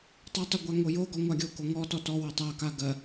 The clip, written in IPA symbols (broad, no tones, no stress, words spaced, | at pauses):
tˤɜtˤo ɡʷaŋojoɡɔ ŋʷaɡʲoko ŋɔtɔ tɔwɔ tˤaka ɡɜ